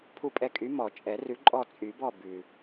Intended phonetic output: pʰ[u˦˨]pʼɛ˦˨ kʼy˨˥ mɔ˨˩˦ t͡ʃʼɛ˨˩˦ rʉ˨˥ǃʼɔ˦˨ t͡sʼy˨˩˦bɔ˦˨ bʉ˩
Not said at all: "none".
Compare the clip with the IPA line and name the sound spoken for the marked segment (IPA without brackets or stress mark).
u˦˨